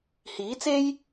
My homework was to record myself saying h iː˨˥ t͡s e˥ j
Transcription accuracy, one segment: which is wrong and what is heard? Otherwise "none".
none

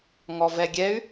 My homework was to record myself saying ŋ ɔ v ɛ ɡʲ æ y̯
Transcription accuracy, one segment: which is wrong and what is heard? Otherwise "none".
æ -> ɛ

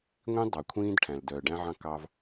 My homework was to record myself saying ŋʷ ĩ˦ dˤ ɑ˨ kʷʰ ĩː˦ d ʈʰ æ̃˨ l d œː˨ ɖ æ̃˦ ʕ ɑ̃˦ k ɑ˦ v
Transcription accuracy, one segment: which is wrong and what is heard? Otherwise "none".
none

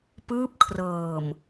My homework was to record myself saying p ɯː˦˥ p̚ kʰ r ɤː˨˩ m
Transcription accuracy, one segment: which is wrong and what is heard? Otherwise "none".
none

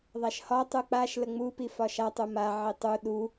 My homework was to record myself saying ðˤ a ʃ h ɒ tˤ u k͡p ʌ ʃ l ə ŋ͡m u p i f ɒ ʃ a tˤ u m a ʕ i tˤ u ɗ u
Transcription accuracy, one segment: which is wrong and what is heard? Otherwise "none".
ʌ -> a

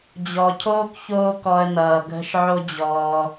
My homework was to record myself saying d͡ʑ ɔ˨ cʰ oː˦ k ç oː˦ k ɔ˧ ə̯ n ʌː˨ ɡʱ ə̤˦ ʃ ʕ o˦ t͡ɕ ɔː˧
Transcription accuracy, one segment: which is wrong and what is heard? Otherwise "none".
t͡ɕ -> d͡ʑ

